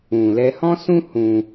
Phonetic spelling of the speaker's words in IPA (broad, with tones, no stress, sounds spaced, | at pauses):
ũ˨ l ɛ˧ h ɔ̃˦ s ũ˦ h ũ˧